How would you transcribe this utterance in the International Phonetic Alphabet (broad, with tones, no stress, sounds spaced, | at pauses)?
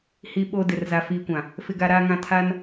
h i˨ ɓ o˨ d ɪ˨ r z a˨ f iː˨ kʷ ã˨ | f ɪ˨ ɡ a˨ ɾ aː˨ ŋ ã˨ tʰ a˦ n